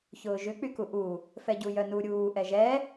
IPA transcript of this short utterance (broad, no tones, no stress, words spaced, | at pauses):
çʊːʒʏ k͡pykuʔu | fɛɟujœnu ɾʲuː ʔɛʒɛ